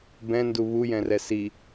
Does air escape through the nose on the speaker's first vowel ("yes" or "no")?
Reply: yes